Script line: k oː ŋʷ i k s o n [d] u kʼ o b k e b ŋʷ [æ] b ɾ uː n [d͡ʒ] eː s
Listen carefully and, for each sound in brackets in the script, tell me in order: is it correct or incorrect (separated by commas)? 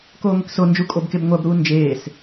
incorrect, correct, correct